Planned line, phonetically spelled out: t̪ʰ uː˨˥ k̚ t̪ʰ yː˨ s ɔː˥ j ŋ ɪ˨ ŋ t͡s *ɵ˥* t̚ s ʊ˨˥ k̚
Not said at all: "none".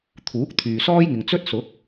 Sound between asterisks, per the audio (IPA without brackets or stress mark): ɵ˥